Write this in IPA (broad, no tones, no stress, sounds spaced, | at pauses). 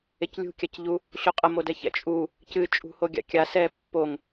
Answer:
e c lʲ ṳ kʲ a c ʎ u | ɕ o qʼ ɐ m o d ɛ ç ɛ̰ t͡ʃʼ u | c ɨ t͡ʃʼ ṳ h o ɡʲ a̰ kʲ a s ɛ pː o ŋ